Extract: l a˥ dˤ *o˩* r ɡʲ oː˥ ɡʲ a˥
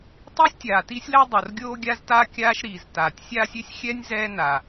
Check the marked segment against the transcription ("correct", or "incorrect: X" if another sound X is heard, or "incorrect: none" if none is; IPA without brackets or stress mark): correct